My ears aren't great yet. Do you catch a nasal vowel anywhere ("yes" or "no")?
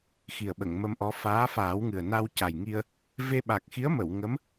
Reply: no